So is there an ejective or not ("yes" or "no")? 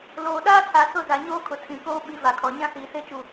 no